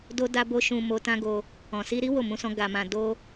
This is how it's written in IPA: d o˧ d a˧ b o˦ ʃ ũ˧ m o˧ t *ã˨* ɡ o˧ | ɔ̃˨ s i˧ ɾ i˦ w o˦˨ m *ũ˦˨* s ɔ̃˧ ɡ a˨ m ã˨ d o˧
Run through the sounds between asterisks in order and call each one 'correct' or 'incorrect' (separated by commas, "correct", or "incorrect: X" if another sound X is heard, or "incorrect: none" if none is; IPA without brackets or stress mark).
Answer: incorrect: ã˦, incorrect: ũ˧